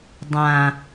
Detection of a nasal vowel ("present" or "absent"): present